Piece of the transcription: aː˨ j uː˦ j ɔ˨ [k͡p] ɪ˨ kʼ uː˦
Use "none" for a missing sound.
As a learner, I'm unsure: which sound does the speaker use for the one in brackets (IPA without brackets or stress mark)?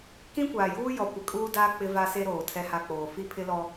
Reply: kʷ